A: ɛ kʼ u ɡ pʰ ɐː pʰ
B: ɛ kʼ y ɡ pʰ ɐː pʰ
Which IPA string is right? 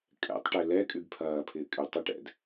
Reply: B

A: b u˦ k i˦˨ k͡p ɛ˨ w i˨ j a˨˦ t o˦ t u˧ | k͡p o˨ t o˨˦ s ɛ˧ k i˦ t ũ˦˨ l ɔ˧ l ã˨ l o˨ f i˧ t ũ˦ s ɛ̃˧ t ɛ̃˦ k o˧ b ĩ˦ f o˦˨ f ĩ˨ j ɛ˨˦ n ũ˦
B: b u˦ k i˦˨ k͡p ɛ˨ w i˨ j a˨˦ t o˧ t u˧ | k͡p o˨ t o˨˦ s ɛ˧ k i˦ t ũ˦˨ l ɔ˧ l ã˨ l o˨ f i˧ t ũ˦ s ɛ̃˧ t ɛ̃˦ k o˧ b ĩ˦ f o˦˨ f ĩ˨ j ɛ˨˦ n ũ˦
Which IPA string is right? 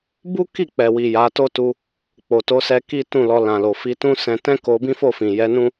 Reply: A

